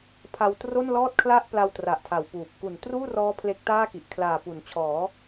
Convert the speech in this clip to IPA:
pʰ a˧ w t r o˥˩ n l ɔː˥˩ t̚ kʰ l a˥˩ ʔ p l a˧ w t r a˨˩ ʔ tʰ a˨˩ w p uː˨˩ p̚ k u˨˩ n t r uː˥˩ r ɔː˦˥ pʰ l e˦˥ k̚ t aː˥˩ k i˨˩ ʔ kʰ l aː˨˩ p u˩˦ n t͡ɕʰ ɔː˩˦

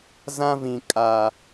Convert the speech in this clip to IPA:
z ã˦ v ĩ˨ kʼ a˨

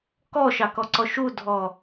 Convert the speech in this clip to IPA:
k ɔ ʃ ɑ k ɔ ǀ ɔ ʃ u dʱ ɔ

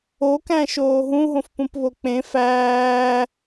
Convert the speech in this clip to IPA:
o k æ̃ ʃ oː ɦ ũ ɦ õ f p ũ p β o k͡p ẽ f æː

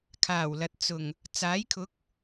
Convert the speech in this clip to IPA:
kʰ aː˨˩ w l ɐ˨ t̚ t͡s ʊ˨˩ ŋ | t͡s aː˨˥ j kʰ ʊ˨˥ k̚

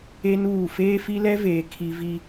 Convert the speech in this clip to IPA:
e˦ n uː˦˨ f eː˦ f i˦ l ɛ˦ v eː˨ kʰ i˨ v i˨

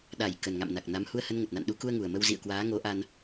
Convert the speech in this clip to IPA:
ɗ a˧˩ j k ə˨˩ n ŋ a̰˧˨ m n a˨˩ k̚ n a˨˦ m h u˧ ə̯ h ə˧ n ŋ ə˨˩ t̚ n a̰˧˨ n ɗ u˨˦ k u˧ ə̯ ŋ u˨˩ ə̯ m ə˧ w z ḭ˧˨ ə̯ k w aː˨˦ ŋ o˨˦ ʔ a˧ n

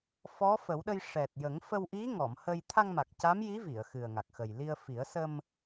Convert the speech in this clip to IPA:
f ɔ˧˥ f ə˨˩˦ w ɗ ə˧ j ʂ ɛ˨˩ t̚ j ə˨˩˦ ŋ f ə˧ w ʔ i˧˥ ŋ ɔ˨˩˨ m h ə˧ j t̪ʰ a˧ ŋ m a˨˩ k̚ c a˧˥ m j i˧˥ v i˨˩˨ ə̯ x ɨ˨˩ ə̯ ŋ a˨˩ k̚ x ə˨˩ j l i˧ ə̯ f i˨˩˦ ə̯ s ə˧ m

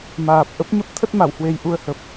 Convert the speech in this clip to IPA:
m aː˨˩ p̚ ʔ ə˦˥ p̚ ɲ ə˦˥ p̚ t̪ʰ ə˦˥ t̚ m a˧˩ w h w e˨˩ j ʔ u˧ ə̯ h ə˨˩ p̚

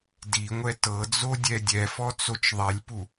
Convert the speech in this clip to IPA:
d i ŋʷ ɛ t ɤ d͡z o dʲ ɛ dʲ ɛ f ɔ t͡s o t͡ʃ ðˤ ɛ lʲ p u

